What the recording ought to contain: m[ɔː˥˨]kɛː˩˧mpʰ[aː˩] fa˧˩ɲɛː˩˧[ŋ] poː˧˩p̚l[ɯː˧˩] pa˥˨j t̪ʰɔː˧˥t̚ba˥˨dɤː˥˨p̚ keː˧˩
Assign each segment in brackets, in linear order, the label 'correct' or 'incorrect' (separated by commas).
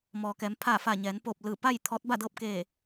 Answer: incorrect, incorrect, incorrect, correct